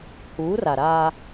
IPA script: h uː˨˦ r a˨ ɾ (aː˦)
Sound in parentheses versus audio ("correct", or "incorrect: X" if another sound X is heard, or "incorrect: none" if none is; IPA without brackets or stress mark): correct